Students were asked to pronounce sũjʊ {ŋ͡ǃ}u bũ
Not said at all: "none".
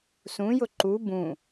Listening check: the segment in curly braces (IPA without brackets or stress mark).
ǃ